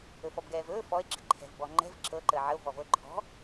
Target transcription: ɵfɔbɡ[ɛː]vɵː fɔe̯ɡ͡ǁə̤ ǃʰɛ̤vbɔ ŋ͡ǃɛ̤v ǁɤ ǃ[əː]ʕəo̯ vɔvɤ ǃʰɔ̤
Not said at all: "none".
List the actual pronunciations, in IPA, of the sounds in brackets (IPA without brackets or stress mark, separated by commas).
ɛː, əː